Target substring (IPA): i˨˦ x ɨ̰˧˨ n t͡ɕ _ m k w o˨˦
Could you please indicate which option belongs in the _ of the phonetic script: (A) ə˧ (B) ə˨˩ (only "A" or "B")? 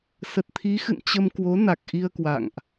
A